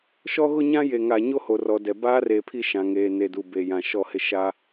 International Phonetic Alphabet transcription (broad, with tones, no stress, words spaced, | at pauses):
ʃɔ˦ɣʊ˦ɲã˦ je˨ŋa˨ɲo˦ ho˨rɔ˨dɛ˨ baː˦reː˨pʰi˦˨ ʃã˨ŋeː˨ne˨du˨ be˨jã˨ ʃɔ˦˨hɪ˦ʃa˦